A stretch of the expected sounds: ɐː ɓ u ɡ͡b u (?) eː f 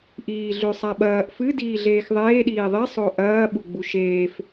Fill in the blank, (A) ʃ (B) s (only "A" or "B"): A